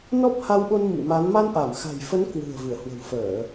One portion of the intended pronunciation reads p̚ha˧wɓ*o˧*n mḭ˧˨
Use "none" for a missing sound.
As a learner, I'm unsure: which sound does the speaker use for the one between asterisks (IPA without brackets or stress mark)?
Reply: o˧